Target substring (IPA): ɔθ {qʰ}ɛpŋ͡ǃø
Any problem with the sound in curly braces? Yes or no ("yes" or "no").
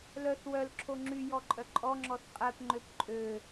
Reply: yes